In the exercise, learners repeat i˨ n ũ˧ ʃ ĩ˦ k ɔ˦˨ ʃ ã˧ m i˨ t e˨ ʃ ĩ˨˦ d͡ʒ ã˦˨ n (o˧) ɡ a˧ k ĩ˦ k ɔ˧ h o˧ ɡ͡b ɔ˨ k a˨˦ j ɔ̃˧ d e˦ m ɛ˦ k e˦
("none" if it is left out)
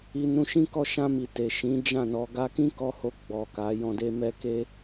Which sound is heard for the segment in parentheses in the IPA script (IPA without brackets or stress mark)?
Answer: ɔ˧